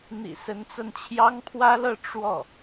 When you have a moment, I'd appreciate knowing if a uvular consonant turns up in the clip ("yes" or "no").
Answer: no